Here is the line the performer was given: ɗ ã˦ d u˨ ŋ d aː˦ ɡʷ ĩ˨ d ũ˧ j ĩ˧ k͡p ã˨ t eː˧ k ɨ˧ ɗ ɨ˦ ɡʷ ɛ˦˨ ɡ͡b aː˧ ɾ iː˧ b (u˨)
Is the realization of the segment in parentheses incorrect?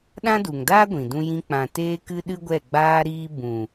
yes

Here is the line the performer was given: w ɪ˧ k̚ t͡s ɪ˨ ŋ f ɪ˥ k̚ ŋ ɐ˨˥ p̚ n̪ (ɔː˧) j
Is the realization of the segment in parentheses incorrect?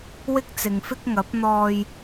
no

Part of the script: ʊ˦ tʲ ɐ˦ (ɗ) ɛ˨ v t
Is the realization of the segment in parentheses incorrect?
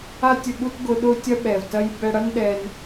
yes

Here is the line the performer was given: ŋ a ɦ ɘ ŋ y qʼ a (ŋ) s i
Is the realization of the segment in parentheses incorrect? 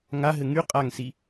no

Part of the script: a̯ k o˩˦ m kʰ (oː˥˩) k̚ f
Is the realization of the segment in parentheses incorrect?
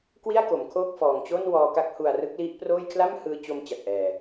no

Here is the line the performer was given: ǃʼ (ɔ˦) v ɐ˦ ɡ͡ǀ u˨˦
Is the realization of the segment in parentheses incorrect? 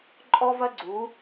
no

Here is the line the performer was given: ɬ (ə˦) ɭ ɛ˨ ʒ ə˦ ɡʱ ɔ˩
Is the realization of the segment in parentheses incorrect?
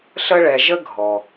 no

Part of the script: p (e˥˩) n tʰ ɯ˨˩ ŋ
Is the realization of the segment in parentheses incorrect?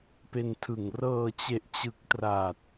yes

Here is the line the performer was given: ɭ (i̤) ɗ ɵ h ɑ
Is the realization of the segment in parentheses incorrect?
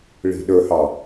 no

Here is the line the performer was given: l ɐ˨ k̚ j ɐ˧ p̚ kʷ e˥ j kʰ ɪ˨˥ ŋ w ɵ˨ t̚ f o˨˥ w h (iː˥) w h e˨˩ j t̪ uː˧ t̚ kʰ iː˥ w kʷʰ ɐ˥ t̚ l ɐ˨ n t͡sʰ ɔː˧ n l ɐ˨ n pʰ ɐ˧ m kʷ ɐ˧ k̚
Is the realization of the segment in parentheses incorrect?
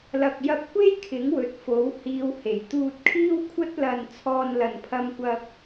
yes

